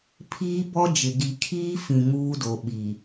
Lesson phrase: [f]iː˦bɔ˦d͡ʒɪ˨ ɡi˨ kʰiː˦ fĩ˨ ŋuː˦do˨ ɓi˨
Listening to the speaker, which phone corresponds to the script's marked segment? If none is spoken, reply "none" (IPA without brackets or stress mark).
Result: pʰ